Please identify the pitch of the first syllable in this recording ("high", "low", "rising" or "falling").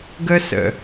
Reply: high